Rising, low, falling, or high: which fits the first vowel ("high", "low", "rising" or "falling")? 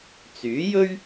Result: rising